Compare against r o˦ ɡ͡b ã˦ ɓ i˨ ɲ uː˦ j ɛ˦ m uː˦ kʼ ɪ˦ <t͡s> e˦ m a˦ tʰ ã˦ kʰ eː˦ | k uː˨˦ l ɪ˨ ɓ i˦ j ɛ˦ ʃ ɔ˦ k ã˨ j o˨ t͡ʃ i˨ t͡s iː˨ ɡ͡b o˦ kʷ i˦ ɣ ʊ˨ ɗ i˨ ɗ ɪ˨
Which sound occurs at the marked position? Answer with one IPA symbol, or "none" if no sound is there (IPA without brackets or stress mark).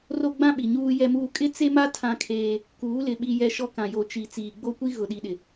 t͡s